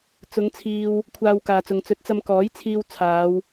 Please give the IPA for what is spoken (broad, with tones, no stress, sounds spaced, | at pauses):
t͡s ʊ˨˧ ŋ t͡sʰ iː˨ w | kʷʰ aː˧ w k aː˨ t͡s ʊ˨ ŋ t͡s ɵ˨˥ t̚ t͡s ɐ˧ m k ɔː˨˥ j t͡sʰ iː˧ w t͡sʰ aː˨˧ w